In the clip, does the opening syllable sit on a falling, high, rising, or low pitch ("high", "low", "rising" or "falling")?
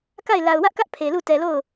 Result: falling